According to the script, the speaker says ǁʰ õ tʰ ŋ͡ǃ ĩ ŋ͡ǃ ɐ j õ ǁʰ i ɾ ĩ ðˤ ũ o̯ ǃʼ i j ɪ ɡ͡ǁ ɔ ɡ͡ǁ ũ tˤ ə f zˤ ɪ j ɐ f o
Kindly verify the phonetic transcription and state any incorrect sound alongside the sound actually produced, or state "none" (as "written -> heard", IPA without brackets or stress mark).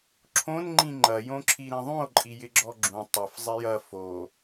tʰ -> n